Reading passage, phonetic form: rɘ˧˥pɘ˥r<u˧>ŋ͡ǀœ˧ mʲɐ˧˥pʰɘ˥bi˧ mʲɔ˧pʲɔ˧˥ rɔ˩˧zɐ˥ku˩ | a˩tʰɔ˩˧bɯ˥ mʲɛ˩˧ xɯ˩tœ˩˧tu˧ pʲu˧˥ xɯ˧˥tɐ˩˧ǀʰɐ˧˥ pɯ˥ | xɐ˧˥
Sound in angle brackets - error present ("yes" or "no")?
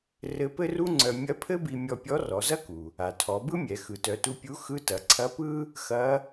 yes